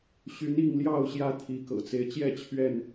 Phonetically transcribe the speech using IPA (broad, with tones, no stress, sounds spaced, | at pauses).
ɕ y˨˦ n i˥˨ ŋ l j ɑ˥˨ ʊ̯ ɕ j ä˦ t̪ʰ i˨˦ k ɤ̰˨˩ t͡s e˦ ɪ̯ t͡ɕ j ɛ˥˨ t͡ɕʰ ɥ ɛ˥˨ n